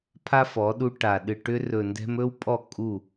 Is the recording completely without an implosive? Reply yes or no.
no